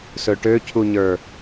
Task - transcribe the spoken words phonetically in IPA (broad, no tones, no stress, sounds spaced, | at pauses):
s ɵ ʈ ø cʰ u ɲ ə˞